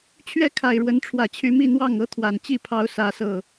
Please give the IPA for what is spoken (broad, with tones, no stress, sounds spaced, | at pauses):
t͡ɕʰ ɥ ɛ˥˨ kʰ a˨˩ ɪ̯ ɻ w ə˨˦ n ʈ͡ʂʰ w ä˨˩ t͡ɕʰ y˨˦ m i˥˨ n̪ w ɑ˥˨ ŋ ɤ˦ t̪ʰ w a˨˩ n t͡ɕ i˥˨ pʰ ɑ˨˦ ʊ̯ s ä˨˦ s ɤ˨˩